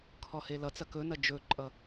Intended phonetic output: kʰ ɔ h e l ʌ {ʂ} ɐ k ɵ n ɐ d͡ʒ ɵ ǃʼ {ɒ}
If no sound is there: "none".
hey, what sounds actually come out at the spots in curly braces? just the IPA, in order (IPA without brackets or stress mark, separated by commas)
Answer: t͡s, ʌ